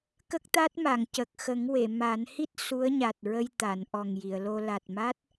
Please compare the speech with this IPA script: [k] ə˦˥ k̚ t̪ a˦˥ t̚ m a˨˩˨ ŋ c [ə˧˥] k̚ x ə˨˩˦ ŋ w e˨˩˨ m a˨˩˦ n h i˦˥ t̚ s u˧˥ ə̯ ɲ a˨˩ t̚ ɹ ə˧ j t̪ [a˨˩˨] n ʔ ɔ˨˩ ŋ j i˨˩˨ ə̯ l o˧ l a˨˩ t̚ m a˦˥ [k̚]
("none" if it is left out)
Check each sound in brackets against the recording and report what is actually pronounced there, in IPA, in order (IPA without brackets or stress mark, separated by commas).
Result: k, ə˨˩, a˨˩˨, t̚